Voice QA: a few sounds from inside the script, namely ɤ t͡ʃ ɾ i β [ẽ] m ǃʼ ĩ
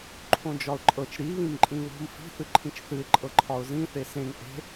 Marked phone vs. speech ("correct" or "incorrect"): incorrect